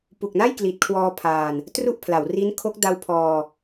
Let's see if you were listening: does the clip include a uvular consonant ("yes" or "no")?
no